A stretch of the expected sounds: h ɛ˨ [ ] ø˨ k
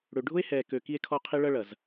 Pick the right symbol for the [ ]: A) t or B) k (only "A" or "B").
B